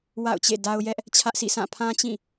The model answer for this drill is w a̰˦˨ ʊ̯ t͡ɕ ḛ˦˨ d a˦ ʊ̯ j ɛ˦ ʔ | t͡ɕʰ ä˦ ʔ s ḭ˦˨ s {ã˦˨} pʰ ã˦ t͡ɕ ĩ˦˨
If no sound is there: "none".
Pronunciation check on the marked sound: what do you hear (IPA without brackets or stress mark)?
ã˦˨